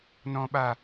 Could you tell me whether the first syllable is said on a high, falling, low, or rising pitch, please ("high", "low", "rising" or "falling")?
high